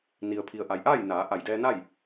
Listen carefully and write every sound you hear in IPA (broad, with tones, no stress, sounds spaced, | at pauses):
n i˩ ə̯ pʰ i˩ ə̯ ʔ a˩ j ʔ aː˥˨ j n aː˩˧ ʔ a˧˩ j d ɛː˧ n a˥˨ j